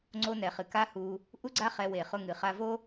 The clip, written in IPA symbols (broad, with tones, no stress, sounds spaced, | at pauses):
ŋ͡ǀ o˧ n ɛ˨ χ ɨ˨ k a˦ h u˧ | ʔ u˦ ɡ͡ǀ a˦ χ ɛ˧ w e˨ χ ʊ˧ ŋ ɨ˨ χ a˧ v o˦